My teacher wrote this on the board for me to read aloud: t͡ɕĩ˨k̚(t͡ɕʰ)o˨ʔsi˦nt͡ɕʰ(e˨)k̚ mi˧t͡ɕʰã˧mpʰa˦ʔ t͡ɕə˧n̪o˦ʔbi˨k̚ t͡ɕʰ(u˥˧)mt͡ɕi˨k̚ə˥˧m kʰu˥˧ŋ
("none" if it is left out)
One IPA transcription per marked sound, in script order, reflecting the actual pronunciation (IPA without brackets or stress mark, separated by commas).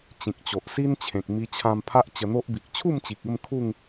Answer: t͡ɕ, ẽ˨, u˥˧